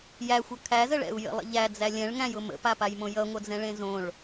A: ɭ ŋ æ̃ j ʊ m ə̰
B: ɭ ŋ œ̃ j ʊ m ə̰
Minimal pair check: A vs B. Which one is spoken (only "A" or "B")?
A